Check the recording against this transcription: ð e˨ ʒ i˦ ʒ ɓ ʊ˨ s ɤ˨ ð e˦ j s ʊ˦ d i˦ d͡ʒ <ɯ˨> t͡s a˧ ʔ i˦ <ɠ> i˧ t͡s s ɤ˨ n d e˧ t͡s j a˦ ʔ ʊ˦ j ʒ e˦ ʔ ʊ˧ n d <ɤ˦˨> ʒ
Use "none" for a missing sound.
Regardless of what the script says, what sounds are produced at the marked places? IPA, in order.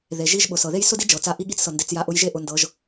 ɤ˨, ɠ, ɤ˧

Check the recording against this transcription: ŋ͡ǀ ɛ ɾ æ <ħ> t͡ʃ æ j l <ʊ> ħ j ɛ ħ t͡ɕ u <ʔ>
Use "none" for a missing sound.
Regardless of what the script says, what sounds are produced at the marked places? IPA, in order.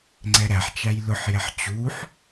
ħ, ʊ, ħ

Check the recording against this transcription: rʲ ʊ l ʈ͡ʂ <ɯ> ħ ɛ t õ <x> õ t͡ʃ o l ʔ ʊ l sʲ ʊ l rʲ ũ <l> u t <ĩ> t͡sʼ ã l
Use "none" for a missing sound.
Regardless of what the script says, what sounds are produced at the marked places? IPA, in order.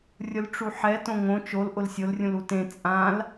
u, ŋ, l, ẽ

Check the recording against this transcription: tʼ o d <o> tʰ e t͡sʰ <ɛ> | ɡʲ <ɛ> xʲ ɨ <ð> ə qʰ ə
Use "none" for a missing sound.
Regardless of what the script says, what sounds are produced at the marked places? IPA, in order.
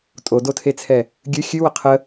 o, ɛ, ɨ, w

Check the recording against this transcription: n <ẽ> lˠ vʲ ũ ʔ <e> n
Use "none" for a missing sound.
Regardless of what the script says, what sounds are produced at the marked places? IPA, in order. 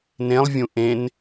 ẽ, ẽ

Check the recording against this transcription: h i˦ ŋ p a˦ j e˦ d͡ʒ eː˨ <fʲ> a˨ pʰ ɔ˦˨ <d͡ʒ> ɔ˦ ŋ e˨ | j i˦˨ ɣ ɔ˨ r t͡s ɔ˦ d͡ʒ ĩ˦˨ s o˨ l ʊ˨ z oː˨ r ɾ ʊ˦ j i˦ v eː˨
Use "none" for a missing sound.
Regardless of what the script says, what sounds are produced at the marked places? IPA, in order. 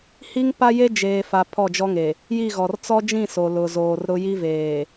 f, d͡ʒ

